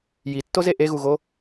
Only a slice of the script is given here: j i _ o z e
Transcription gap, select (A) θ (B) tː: B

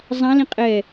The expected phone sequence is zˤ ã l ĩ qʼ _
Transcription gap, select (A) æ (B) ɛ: B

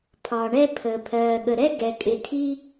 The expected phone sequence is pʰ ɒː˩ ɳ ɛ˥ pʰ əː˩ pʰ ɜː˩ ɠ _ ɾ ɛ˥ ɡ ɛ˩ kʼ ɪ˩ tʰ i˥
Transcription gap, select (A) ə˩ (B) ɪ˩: A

